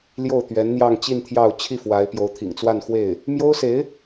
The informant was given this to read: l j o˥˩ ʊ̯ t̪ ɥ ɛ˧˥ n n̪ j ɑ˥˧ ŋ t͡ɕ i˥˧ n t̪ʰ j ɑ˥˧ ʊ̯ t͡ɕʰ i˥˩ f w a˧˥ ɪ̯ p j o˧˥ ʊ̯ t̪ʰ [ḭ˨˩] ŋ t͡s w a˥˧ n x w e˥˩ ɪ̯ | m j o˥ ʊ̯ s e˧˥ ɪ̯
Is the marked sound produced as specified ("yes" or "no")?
yes